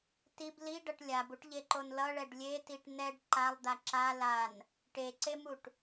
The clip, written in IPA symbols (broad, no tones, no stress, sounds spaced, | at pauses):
t i b l i ɖ ʌ ʈ lʲ a b u ʈ ʎ e ǃ o n l ʌ ɭ ɛ ɖ lʲ e t i ʈ n ɛ ɖ ǃ a lˠ d̪ a ǁ a l a n | ʈ e ǀ e m u ʈ